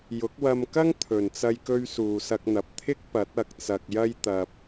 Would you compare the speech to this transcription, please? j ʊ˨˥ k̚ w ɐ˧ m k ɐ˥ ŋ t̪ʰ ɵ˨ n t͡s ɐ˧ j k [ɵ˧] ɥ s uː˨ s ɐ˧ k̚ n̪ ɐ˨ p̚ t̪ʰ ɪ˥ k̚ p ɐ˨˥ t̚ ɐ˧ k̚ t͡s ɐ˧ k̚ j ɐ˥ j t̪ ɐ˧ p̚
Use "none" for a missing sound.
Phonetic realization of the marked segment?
ɵ˧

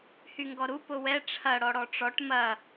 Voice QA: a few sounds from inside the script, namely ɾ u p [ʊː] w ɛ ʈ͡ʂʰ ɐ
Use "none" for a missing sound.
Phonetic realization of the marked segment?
ʊ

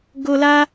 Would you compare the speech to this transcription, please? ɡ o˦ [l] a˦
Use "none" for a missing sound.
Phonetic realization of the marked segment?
l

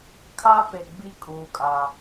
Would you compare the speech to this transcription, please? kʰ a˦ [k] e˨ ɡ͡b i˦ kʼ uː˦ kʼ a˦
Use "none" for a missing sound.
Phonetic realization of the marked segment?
p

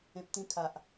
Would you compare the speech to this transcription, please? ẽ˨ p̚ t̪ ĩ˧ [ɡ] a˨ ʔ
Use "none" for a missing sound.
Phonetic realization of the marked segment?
kʰ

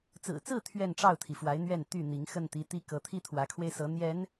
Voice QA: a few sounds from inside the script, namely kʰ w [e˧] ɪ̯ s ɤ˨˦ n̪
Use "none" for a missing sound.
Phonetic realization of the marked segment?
e˧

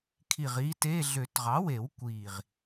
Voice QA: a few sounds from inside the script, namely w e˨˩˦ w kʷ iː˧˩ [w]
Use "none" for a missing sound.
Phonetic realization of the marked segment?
ʁ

